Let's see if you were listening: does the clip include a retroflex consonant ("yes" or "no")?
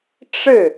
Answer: yes